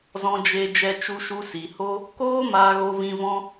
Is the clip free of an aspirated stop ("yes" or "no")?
yes